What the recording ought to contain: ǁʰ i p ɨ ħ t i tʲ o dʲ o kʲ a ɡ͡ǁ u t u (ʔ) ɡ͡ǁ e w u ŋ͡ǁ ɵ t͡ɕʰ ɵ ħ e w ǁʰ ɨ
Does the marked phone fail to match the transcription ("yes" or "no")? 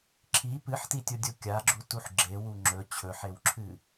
yes